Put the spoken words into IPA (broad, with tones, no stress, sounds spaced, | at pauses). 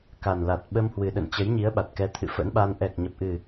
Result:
k a˨˩ n l a˨˩ t̚ ɓ ə˧ m h w ɨ˨˩ ɗ ə̰˧˨ n t͡ɕ ə˨˦ j ɲ i˨˦ ə̯ ɓ a˨˩ t̚ k ɛ˨˦ t̪ʰ ɨ̰˧˨ f ə̰˧˥ n ɓ a˧ n ʔ ɛ˨˩ k̚ ɲ ə˨˩ p̚ ʔ ɨ˨˩